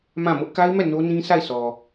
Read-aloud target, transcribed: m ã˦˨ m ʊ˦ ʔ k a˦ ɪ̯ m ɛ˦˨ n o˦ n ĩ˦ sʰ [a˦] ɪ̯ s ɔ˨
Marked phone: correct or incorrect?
incorrect